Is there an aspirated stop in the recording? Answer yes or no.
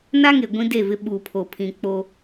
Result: yes